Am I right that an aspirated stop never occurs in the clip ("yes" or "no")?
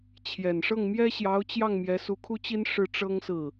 no